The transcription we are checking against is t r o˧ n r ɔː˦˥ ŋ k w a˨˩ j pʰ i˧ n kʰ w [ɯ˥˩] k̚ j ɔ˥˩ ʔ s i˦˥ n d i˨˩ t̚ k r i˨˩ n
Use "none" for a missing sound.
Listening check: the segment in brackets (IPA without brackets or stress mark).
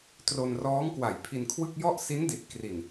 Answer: ɯ˥˩